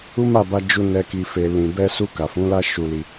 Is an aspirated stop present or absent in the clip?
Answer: absent